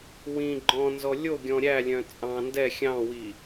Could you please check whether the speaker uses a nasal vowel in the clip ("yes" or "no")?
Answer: yes